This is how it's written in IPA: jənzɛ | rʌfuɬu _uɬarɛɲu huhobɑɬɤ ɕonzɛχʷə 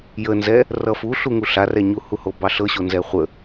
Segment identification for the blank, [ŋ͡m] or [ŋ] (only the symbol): ŋ